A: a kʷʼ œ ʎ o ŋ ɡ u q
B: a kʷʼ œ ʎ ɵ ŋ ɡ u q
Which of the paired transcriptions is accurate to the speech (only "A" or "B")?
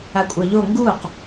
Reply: A